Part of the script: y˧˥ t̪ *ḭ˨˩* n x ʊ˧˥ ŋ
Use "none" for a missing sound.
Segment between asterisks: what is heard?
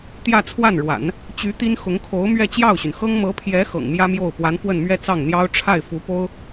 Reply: i˥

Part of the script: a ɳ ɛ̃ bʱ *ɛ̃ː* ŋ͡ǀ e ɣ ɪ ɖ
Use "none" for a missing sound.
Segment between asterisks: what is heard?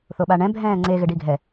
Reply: ɛ̃ː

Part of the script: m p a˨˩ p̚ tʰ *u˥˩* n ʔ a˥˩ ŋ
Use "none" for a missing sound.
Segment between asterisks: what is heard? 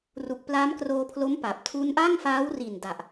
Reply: u˦˥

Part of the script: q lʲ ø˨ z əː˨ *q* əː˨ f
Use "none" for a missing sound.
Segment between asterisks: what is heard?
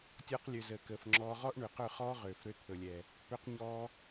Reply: k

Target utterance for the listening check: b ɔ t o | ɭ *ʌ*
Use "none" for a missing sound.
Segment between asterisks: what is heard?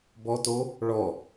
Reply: ɔ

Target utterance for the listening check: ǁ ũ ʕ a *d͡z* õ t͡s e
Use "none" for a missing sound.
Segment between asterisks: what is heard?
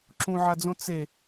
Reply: d͡z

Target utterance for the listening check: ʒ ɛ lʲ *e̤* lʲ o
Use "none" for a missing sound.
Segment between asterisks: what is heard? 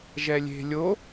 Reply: e̤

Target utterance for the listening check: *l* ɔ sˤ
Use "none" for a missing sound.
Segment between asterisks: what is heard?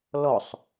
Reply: l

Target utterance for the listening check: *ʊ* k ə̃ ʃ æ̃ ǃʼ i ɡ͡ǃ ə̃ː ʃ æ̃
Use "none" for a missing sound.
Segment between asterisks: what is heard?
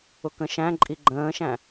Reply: ʊ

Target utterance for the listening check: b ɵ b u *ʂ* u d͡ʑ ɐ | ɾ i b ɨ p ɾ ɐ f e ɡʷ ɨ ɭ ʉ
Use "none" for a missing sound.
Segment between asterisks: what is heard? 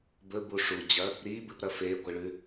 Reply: ʂ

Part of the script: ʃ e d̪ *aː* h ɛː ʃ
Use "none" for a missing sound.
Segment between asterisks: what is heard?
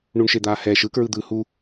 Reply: aː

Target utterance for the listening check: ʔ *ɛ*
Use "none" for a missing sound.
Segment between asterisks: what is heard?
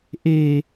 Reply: e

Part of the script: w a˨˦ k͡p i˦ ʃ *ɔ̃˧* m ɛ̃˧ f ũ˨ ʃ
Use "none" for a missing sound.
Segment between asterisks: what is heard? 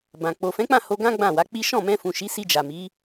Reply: ɔ̃˦˨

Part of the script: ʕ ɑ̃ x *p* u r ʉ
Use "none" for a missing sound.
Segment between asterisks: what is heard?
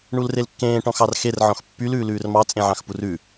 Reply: p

